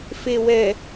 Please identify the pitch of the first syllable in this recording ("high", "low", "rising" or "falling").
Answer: low